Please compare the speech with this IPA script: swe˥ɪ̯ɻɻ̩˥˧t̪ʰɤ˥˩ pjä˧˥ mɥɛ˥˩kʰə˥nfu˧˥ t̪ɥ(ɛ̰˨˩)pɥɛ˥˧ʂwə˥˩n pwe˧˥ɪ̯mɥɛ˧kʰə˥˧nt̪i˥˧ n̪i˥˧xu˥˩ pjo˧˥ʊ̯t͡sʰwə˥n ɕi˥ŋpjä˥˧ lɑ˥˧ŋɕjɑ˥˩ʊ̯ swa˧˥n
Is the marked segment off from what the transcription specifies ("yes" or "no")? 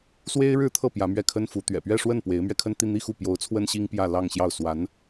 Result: no